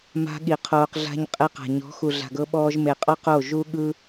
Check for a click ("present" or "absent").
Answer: absent